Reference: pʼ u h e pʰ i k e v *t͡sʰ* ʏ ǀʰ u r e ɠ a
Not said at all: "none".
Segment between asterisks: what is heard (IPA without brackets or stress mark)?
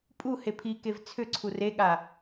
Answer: t͡sʰ